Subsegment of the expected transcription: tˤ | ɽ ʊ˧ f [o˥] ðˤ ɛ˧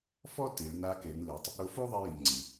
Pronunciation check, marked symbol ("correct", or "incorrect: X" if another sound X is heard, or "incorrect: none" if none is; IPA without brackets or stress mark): correct